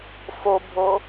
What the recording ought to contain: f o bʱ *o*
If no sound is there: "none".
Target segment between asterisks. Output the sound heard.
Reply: o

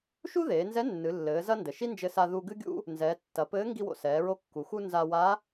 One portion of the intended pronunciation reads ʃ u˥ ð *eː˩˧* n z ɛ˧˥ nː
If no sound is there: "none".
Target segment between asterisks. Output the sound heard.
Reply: eː˩˧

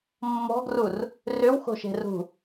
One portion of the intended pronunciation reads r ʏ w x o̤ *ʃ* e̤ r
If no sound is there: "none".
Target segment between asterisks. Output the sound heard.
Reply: ʃ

